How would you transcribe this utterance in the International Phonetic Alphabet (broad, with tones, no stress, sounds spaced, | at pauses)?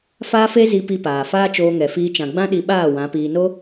f aː˦ f e˦ z i˧ p i˧ p aː˨ f aː˦ t͡ʃ oː˧ ŋ ɛ˨ f iː˧ t͡ʃ ã˨ ɡ͡b ã˦ ɗ i˧ ɓ aː˦˨ w ã˨˦ p iː˧ n o˦